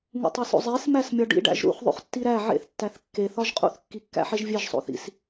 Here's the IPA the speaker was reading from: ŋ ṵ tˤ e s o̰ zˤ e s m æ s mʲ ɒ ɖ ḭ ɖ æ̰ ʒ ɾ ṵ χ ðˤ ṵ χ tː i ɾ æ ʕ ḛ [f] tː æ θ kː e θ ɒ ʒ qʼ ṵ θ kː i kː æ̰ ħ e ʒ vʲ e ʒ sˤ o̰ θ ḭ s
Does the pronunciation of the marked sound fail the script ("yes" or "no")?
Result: yes